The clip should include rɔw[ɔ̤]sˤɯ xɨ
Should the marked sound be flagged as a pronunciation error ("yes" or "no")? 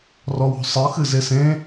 no